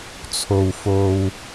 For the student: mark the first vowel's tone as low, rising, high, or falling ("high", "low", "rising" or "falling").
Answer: low